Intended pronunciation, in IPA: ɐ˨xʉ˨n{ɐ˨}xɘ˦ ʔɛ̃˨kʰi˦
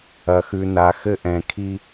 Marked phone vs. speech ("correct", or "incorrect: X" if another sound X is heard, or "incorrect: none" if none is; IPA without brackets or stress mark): incorrect: a˨